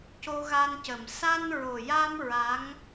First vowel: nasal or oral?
oral